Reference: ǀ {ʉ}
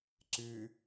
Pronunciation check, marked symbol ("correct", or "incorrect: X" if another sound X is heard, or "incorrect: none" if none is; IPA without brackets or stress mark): correct